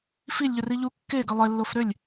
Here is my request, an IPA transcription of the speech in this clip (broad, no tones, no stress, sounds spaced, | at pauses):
f i lʲ ʎ œ r i ʎ u kː e ɡ ə lˠ e lː o f ɾ ø lʲ